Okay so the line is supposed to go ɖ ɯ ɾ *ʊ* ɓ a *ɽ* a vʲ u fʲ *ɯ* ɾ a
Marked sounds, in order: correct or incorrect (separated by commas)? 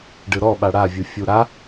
incorrect, correct, incorrect